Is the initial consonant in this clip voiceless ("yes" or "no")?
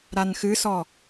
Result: no